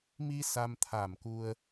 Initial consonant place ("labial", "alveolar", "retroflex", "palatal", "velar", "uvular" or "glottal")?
labial